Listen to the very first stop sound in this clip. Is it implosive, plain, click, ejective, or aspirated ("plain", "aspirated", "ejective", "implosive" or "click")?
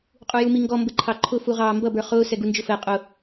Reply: ejective